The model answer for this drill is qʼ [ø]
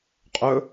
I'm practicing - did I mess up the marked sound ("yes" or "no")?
yes